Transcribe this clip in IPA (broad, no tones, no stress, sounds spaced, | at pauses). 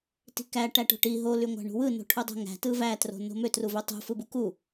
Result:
t i̤ k æ ʈ æ ʈ o̤ ʈ i ɦ o l y ŋʷ æ̤ ɳ ṳ w ɯ n o̤ ʈʰ u dˤ ṳ ŋ æ̤ t ɯ v æ t r o̤ n o̤ m ø t r u v ø tˤ ṳ f ɯ b u k u